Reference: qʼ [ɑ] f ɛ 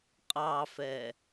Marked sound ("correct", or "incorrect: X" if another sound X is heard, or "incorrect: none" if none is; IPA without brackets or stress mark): correct